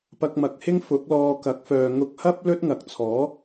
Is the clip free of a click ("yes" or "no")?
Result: yes